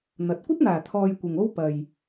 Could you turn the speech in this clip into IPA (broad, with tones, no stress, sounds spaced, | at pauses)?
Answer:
n̪ ɐ˨ t̚ kʷ ɐ˥ t̚ n̪ aː˨˩ t̪ʰ ɔː˧ j kʷ ɪ˨ ŋ o˥ w p ɐ˨ j